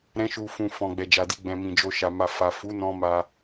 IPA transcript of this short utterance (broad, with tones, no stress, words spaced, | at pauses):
ɾɛ̃˧ʃu˨fũ˨ fɔ̃˨ɡ͡bɛ˨d͡ʒa˨di˧ ɡ͡bɛ̃˨mĩ˨d͡ʒo˧ʃa˨ ma˨fa˨ fu˨˦nɔ̃˧ ma˧